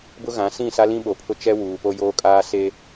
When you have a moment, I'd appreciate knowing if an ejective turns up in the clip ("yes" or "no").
yes